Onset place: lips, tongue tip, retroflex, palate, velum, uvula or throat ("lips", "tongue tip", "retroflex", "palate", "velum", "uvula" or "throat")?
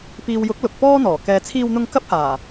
lips